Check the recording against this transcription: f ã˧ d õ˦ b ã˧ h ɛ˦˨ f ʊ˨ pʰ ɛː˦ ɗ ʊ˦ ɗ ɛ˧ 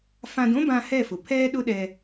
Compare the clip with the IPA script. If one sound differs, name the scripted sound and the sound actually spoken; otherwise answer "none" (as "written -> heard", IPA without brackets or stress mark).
none